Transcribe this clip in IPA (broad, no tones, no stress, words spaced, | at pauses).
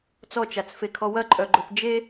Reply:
t͡sɔt͡ʃat͡sfekʰɔ wɐǃʼœɡ͡ǃœθ d͡ʒe